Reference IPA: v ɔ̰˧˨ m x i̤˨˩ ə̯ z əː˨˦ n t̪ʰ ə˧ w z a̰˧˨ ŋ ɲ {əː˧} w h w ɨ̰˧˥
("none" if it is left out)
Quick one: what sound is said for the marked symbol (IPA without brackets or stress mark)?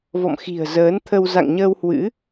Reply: əː˧